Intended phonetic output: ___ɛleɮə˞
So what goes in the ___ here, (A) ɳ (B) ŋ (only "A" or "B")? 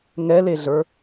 B